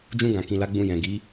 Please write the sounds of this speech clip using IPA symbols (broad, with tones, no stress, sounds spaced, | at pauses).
d͡ʒ ũ˧ ɡ ã˨ k ĩ˨ l a˨˦ ɡ͡b ũ˧ j ɛ̃˨ ɡ i˨˦